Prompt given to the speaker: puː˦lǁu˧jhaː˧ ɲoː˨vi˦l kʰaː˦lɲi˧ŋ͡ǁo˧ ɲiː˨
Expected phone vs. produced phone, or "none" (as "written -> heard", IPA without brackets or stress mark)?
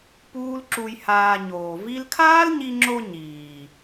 none